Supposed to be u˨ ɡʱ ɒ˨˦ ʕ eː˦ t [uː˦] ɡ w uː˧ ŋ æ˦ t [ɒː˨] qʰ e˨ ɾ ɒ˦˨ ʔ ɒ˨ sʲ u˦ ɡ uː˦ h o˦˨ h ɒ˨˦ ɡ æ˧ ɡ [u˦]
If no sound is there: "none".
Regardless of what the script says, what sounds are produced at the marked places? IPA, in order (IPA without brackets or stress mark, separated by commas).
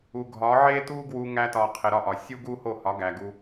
uː˦, ɒː˨, u˦